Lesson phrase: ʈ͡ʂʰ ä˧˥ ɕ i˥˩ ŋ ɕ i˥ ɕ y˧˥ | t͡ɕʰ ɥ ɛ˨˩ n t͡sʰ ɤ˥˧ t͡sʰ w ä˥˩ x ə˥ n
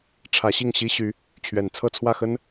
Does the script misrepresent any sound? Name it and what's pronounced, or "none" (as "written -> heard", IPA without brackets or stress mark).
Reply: none